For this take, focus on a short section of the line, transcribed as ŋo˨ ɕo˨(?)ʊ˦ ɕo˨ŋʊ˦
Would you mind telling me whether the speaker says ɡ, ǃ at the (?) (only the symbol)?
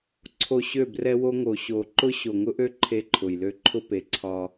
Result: ǃ